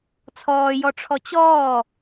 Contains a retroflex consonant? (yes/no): yes